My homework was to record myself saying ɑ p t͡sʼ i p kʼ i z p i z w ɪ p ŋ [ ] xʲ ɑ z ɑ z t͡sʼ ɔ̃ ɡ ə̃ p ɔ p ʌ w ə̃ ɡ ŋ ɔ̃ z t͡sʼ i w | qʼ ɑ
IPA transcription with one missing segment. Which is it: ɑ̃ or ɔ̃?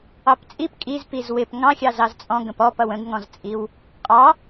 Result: ɑ̃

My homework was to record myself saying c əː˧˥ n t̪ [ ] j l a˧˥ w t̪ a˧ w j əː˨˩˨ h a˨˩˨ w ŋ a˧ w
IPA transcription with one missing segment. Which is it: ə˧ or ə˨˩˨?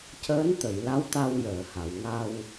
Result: ə˨˩˨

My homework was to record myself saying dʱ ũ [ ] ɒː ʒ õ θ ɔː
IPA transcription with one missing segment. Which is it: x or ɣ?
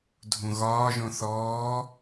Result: ɣ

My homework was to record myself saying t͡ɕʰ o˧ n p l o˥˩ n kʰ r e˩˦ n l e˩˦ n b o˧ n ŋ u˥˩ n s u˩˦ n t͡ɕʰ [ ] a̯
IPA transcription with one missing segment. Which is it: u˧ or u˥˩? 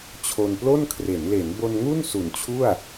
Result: u˥˩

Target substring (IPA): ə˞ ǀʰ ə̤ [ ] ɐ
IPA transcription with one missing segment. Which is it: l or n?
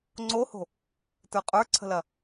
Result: l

